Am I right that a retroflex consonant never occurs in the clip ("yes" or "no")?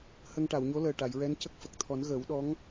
no